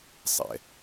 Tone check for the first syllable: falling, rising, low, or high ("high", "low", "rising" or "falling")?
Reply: low